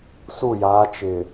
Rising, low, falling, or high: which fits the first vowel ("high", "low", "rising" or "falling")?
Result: falling